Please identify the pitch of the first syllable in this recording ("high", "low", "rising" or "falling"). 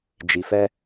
low